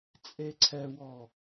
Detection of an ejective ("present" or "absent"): present